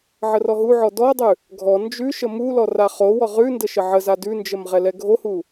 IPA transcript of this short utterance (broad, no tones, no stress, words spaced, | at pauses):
ʕərɔɦuʕɔ dɔdˤʉ | ɡʱɔ nd͡ʒʉ ʃəmulɔ raχowɔ ʁʉ ndəʃəʕəza dʉnd͡ʒəm ʁɛlɛɡʱohu